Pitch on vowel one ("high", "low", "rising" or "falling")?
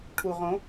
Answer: low